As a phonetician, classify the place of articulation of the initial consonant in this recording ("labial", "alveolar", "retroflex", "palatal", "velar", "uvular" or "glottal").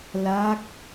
alveolar